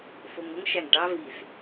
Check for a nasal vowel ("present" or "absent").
absent